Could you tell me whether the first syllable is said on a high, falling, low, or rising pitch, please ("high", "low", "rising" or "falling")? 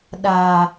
low